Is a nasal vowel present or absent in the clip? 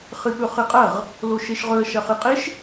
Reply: absent